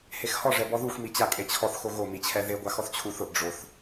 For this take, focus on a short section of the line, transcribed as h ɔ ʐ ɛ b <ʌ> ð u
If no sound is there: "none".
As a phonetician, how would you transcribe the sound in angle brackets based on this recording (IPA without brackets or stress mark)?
ɔ